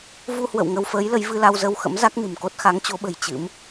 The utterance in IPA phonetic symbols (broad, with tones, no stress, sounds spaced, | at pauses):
v u˧ h w ə̰˧˨ w ŋ ə˧ w f əː˨˦ j l ə˨˦ j v ɨ˧ l a˧ w z ə˧ w x ə̰˧˥ m z a˦˥ k̚ n ɨ̤˨˩ m k o˦˥ t̚ x a˨˦ ŋ t͡ɕ o˨˦ ɓ ə̤˨˩ j t͡ɕ ɨ̰˧˥ m